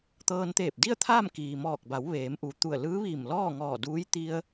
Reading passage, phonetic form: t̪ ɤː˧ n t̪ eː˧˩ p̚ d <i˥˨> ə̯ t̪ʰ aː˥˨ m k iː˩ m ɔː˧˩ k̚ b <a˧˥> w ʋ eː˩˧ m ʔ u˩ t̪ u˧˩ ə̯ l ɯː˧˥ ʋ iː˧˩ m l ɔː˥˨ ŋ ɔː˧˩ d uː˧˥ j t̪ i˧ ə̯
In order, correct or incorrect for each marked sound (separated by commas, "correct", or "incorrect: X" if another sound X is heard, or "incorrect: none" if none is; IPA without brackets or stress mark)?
correct, incorrect: a˩˧